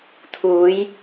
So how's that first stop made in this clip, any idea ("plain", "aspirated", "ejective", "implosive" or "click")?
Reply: aspirated